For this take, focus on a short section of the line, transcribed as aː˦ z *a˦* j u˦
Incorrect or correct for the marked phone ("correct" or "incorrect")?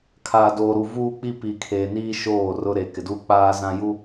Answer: incorrect